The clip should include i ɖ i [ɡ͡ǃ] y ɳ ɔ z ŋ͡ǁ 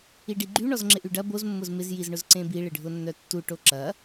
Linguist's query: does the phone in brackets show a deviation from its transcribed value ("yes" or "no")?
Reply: no